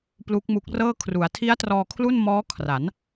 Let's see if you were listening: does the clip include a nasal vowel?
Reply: no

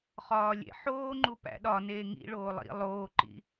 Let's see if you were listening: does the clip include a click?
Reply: yes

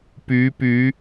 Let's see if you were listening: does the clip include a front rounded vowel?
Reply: yes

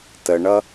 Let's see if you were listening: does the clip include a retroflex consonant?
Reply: yes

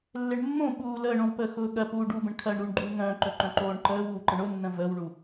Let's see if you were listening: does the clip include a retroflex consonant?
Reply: yes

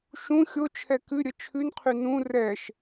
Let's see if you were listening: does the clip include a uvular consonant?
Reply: yes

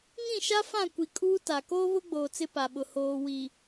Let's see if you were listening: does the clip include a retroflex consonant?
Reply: no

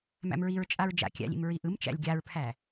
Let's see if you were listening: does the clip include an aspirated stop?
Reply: yes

